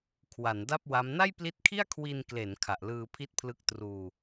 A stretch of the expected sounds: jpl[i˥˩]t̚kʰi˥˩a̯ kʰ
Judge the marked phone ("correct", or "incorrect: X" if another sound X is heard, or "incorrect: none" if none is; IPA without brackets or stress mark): incorrect: i˦˥